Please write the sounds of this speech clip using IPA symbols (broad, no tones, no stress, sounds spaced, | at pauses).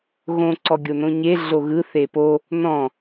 ɣ õ ǀ ɔ ɡʲ o n õ ɲ e ɮ o ɣ ɯ θ e p o | n ɔ̃